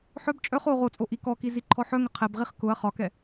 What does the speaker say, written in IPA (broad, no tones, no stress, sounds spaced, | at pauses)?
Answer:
ħ œ b t͡ʃʼ œ χ o ʁ o t͡sʼ o ʔ i k ɔ k i z i ǃʰ ɔ ħ œ ŋ ə qʰ ɛ b ʁ i χ k ʊ ɐ̯ χ ɒ k ɛ